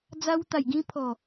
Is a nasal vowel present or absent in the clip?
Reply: present